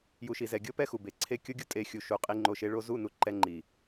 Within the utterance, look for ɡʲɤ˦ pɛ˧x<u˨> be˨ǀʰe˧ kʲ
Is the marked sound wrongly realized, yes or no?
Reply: no